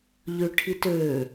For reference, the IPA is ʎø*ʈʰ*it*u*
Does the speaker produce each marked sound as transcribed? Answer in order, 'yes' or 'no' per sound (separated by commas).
yes, no